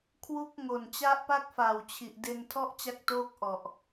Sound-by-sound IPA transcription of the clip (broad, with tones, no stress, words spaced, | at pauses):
kʰwu˦˥k̚ ŋo˨˩n t͡ɕa˦˥ʔpa˥˩k̚fa˨˩wt͡ɕʰi˨˩ʔ de˧ntʰɔ˥˩ʔt͡ɕa˦˥k̚toː˦˥k̚ ʔɔ˨˩ʔ